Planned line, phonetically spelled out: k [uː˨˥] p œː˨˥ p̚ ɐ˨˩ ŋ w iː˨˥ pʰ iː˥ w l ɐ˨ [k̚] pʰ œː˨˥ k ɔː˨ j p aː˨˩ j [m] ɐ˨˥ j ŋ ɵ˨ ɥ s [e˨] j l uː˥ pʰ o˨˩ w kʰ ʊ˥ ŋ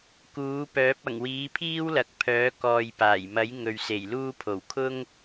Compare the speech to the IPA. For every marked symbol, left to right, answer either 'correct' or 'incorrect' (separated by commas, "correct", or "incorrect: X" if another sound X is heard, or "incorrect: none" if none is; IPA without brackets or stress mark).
correct, correct, correct, incorrect: e˨˩